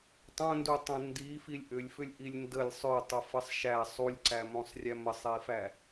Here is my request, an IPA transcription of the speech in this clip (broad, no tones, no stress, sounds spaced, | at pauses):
tˤ õ n d u tˤ ə̃ n d i f i lʲ ʔ ʏ lʲ f ʏ lʲ ʔ i lʲ n d ə lʲ sˤ ʏ tˤ ə f ə sˤ ʃ æ sˤ u lʲ ǀ æ m õ sˤ rʲ æ m ə sˤ i f æ